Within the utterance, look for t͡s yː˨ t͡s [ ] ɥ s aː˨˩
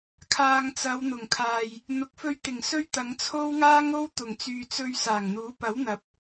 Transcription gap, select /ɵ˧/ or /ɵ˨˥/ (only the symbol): ɵ˧